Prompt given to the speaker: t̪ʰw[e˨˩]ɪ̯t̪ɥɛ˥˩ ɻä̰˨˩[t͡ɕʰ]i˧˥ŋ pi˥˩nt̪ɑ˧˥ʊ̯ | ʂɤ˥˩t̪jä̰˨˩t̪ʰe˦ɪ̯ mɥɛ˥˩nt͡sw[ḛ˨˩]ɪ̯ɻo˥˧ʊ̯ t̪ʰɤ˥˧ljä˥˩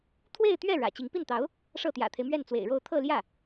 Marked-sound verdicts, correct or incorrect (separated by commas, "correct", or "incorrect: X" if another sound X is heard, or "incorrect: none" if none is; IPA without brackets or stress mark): incorrect: e˥˧, incorrect: t͡ɕ, correct